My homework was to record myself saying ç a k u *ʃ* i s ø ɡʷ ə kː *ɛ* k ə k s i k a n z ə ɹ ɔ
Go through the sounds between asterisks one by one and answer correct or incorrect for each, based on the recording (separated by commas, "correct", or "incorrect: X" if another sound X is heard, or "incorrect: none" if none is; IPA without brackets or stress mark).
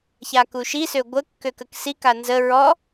correct, incorrect: ø